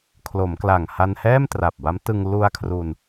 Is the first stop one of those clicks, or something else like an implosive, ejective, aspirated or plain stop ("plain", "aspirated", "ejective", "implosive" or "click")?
aspirated